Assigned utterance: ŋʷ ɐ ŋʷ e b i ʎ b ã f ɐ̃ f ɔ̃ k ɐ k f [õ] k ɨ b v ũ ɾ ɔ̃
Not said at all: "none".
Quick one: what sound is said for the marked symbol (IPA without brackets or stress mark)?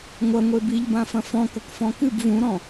ɔ̃